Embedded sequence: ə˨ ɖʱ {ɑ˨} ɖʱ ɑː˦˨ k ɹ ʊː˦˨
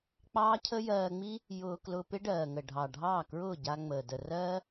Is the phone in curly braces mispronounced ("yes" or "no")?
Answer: no